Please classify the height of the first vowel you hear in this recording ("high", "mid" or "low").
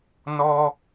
mid